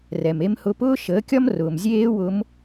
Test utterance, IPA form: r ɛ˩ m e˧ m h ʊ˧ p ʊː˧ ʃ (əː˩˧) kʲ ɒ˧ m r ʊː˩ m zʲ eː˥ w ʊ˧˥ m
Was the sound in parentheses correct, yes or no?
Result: yes